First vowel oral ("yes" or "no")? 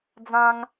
no